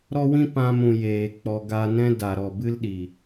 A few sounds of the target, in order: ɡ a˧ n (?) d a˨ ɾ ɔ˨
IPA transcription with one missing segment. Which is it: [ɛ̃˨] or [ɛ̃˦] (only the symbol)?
ɛ̃˦